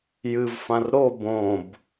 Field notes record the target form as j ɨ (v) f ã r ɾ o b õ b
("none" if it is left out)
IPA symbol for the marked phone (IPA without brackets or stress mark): v